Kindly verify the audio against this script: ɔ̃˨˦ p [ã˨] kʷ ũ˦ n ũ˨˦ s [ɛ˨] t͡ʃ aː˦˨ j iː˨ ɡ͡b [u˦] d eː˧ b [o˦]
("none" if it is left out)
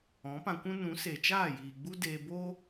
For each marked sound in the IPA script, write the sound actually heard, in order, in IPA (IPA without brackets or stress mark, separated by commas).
ã˧, e˨, u˦, o˦